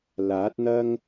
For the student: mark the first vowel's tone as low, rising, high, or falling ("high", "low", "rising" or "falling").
rising